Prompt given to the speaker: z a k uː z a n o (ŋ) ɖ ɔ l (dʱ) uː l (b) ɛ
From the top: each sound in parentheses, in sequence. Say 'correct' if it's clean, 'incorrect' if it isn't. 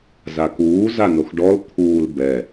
incorrect: x, incorrect: t̪ʰ, correct

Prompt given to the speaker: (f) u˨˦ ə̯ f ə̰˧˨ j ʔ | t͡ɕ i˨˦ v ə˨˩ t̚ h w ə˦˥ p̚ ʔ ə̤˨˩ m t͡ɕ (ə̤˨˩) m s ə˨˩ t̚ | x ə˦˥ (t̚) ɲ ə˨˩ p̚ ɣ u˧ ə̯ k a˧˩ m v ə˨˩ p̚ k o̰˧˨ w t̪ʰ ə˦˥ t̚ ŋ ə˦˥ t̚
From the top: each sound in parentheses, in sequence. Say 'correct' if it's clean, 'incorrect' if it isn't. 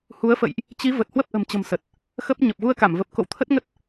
incorrect: h, correct, incorrect: p̚

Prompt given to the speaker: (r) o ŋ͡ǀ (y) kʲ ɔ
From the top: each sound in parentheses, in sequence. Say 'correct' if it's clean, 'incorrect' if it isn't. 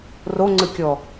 correct, incorrect: ɨ

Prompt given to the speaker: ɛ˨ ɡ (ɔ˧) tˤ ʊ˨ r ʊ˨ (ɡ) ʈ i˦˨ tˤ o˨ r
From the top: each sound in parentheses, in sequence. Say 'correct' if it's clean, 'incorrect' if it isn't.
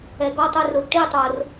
correct, correct

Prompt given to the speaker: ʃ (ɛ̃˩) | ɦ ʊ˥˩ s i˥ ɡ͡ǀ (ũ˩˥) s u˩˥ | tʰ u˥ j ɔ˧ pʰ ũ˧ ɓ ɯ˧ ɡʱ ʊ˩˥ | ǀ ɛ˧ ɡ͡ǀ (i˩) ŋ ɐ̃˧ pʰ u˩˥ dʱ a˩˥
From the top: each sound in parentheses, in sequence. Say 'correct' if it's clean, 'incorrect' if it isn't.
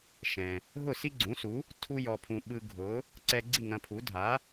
correct, correct, incorrect: i˥˩

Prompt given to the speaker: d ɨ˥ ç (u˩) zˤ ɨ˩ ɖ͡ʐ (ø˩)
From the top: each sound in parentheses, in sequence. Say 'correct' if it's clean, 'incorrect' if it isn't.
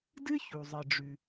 correct, incorrect: ʉ˩

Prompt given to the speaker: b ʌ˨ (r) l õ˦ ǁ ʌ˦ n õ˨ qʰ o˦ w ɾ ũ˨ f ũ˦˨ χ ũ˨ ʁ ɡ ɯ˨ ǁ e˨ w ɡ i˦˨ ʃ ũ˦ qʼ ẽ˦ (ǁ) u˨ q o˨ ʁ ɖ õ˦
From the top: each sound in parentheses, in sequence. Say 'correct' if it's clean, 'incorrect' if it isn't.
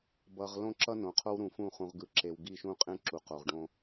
incorrect: ʁ, correct

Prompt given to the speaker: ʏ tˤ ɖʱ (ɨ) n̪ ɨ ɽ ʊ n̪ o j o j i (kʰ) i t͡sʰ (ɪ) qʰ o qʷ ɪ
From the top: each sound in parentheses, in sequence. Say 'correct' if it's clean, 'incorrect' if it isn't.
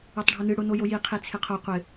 incorrect: ʏ, incorrect: qʰ, correct

